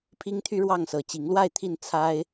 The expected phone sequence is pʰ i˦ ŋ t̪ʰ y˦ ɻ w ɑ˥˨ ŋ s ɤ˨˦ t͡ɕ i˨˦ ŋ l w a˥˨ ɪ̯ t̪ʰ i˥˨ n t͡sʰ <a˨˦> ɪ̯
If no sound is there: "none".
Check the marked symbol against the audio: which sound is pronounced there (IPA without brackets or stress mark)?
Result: a˦